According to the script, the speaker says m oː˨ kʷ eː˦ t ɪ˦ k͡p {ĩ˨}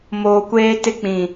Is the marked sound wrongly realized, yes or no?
no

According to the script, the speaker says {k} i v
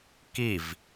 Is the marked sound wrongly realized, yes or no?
no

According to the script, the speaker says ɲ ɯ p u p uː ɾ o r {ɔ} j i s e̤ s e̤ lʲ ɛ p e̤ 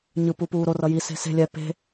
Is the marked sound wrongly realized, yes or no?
yes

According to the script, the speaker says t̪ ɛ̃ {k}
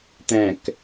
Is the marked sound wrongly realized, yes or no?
no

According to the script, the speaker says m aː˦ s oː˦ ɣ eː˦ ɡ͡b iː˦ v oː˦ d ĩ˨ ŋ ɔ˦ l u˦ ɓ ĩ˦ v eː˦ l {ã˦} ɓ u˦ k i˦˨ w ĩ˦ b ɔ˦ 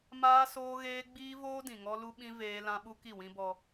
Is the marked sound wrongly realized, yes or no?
no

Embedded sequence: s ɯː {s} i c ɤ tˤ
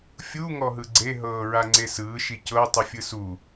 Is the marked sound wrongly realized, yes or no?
yes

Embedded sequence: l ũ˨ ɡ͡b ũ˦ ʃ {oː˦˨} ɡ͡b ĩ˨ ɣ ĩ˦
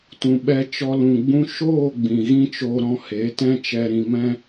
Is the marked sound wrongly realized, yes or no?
no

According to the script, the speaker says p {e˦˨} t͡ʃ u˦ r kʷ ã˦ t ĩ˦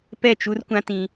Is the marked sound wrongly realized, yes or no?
yes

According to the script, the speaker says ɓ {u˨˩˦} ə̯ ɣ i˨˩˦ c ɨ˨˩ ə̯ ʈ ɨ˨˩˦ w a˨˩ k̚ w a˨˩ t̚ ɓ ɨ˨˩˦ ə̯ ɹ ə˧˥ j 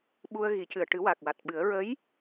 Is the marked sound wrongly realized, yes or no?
yes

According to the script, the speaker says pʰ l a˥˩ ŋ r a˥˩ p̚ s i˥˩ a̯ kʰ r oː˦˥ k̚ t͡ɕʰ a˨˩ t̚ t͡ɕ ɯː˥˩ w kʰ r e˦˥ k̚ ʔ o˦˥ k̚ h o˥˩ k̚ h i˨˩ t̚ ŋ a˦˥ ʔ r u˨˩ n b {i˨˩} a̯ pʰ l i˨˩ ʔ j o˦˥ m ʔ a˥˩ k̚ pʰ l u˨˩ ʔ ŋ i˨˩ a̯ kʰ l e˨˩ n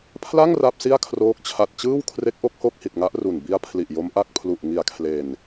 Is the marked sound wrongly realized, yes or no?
yes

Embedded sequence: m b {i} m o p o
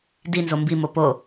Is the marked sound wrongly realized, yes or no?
no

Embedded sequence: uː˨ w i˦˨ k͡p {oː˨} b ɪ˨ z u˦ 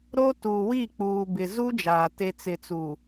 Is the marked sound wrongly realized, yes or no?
yes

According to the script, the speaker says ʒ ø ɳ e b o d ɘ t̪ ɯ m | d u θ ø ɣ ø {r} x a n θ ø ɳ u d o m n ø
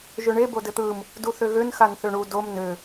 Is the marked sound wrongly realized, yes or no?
yes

